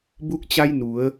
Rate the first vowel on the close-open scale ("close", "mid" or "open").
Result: close